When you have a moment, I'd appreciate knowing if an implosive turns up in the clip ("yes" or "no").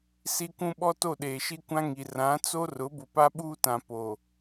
yes